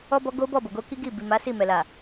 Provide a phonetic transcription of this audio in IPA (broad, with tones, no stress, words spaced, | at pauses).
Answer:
ɔ˦bɔ˦ ɡo˦bɔ˦˨bo˨ ɡo˧ ki˦ɡi˦˨ bi˨ma˨˦ si˦˨mɛ˨la˨